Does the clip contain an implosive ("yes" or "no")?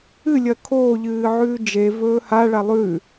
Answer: no